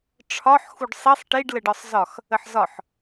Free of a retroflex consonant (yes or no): no